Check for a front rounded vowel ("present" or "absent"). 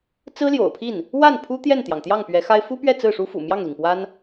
absent